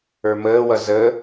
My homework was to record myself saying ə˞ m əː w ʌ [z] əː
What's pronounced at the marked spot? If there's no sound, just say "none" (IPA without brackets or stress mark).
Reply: z